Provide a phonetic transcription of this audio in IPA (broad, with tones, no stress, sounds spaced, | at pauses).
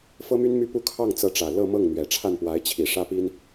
f ɤ˥ m y˥ n m y˥ p u˥ kʰ ɑ˥˩ ŋ t͡s ɤ˧˥ ʈ͡ʂ ä˨˩ l ɤ˥˧ m ɤ˥˩ ŋ n̪ ɥ ɛ˨˩ ʈ͡ʂʰ a˥˩ n p w a˧˥ ɪ̯ t͡ɕʰ i˨˩ ʂ ä˥ p i˥ n